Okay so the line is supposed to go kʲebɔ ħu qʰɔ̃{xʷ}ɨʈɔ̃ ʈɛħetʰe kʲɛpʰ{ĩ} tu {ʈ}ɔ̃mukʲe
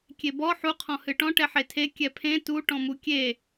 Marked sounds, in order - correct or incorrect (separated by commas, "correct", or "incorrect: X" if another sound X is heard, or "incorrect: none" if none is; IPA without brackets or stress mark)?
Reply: incorrect: h, incorrect: ẽ, correct